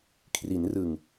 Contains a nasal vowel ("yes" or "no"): no